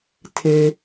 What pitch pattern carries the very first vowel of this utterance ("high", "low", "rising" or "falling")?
low